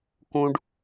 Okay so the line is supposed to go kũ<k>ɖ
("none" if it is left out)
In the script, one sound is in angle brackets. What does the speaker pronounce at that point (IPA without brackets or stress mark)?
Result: none